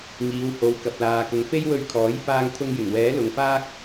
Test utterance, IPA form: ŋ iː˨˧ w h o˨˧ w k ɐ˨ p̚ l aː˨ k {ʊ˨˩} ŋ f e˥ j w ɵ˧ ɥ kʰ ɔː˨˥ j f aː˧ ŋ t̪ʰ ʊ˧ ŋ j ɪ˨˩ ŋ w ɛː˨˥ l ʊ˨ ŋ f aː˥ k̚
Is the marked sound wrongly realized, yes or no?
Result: yes